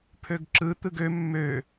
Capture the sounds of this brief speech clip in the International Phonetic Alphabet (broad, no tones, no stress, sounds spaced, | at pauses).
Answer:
pʰ ø ɡ ǁ ɯ t̪ ɯ ɡ ø mː ø